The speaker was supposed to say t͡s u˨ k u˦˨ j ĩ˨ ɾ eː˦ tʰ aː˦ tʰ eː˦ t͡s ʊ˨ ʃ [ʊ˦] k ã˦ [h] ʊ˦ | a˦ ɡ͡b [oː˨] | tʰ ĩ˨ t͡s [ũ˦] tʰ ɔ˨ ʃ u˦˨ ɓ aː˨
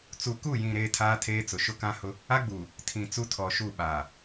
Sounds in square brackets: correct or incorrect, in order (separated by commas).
correct, correct, incorrect, incorrect